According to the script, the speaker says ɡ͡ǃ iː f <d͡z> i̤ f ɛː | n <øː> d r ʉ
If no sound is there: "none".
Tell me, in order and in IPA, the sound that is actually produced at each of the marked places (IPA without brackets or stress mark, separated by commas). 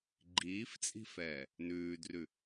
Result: t͡sʼ, ʉː